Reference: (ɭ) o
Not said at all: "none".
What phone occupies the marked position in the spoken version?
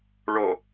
ɭ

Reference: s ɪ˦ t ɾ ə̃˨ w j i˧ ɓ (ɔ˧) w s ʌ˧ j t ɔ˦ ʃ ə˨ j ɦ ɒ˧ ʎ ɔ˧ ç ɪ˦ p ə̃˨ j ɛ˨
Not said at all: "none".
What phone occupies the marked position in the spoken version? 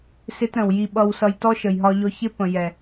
ʌ˧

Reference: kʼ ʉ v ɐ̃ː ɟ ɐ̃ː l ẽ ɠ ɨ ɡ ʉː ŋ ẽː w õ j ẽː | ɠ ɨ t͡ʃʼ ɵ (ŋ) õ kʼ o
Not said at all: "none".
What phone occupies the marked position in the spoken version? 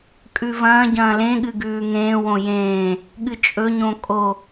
ɲ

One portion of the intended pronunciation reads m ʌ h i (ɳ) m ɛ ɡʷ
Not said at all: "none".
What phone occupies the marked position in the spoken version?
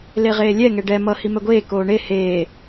none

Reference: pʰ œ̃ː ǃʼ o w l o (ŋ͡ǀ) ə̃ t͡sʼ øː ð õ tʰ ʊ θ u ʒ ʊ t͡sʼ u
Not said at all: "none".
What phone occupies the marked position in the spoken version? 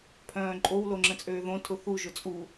ŋ͡ǁ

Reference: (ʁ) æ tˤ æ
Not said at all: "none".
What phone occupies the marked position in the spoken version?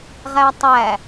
ʁ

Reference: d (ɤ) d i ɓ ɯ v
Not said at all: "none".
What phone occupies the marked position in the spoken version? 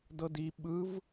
ɤ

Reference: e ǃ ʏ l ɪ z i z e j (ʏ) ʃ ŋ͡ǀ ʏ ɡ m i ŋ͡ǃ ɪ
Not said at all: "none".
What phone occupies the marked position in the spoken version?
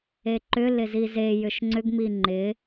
ʏ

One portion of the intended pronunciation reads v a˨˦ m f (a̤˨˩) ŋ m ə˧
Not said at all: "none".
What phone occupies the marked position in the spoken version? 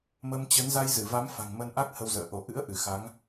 a̤˨˩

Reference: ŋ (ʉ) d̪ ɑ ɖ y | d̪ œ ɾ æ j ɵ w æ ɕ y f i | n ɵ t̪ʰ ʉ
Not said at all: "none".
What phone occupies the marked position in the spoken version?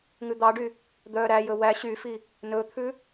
ʉ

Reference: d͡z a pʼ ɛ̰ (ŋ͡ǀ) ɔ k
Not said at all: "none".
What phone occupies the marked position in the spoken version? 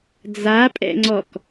ŋ͡ǀ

